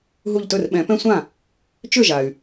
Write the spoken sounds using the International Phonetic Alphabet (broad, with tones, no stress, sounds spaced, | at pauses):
ɦ u˧˩ ʎ t ɵ˥˩ r ɓ ɛ̃˨˩˦ p ɛ̃˦ sʷ ã˥˩ | t͡ʃ ʏ˥˩ ʒ a˩ y̯